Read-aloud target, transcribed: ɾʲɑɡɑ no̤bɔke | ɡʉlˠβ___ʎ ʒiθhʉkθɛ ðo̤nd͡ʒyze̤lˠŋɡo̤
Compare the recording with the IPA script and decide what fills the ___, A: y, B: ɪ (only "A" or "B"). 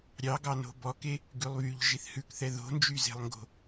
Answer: A